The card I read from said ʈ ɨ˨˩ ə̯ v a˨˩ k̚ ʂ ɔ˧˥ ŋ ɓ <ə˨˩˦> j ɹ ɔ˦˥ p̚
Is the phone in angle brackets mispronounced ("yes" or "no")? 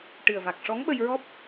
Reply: yes